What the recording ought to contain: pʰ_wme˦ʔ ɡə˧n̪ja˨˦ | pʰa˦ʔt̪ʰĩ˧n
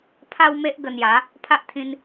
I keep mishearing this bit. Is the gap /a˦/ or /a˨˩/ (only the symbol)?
a˦